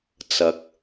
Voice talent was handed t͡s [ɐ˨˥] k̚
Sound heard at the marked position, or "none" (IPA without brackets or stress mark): ɐ˨˥